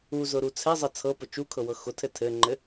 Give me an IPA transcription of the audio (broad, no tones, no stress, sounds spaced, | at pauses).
u z ʊ ɾ u t͡sʰ ɛ zˤ ɤ t͡sʰ ɤ p ʊ t͡ʃ u kʰ ɤ w ɤ x ʊ tʰ ɘ tʰ ɘ ŋ͡ǃ ɘ